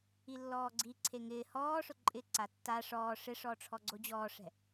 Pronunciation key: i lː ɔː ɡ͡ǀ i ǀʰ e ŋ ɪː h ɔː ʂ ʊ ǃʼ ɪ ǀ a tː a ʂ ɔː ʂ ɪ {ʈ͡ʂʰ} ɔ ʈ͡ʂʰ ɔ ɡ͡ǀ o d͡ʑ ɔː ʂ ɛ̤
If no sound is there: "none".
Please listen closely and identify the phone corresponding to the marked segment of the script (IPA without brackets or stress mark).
ʂ